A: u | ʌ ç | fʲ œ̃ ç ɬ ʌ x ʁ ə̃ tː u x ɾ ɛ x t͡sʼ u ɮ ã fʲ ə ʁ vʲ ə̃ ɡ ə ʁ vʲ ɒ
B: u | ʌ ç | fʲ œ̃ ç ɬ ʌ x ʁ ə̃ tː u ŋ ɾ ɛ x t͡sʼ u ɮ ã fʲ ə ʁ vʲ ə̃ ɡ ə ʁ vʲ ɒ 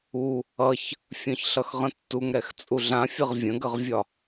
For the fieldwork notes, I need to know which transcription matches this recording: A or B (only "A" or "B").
B